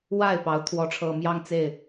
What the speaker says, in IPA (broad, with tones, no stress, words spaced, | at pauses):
wa˥˩ɪ̯ pɑ˧˥ʊ̯ t̪ʰwɔ˧˥ʈ͡ʂʰɤ˨˩ mjɑ˥˧ŋt͡se˥˩ɪ̯